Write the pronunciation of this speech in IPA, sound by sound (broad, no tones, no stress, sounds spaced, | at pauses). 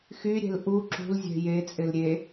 x y ɾʲ ɛ̤ l ʔ u ǁ ṳ l zʲ ɛ̤ j e t͡sʼ ɪ l ɾʲ e